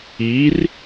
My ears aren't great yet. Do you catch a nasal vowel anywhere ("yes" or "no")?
no